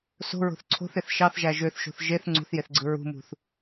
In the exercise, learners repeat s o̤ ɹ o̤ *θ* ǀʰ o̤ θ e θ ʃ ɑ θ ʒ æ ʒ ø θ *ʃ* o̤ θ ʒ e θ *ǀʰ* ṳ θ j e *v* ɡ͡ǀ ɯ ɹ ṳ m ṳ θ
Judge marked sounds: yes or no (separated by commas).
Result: yes, yes, no, no